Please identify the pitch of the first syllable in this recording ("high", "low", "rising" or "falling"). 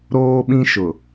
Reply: high